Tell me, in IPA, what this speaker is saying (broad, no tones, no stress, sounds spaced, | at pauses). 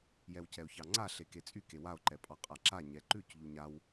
j ɛ w c ɛ o̯ ç ɑ ŋ͡ǀ a ɬ e k e t͡sʼ y k e w a o̯ ǃ ɛ pʼ ɑ qʼ a ǁ a ɲ ɛ ǃ ʉ c ʎ u ɲ a w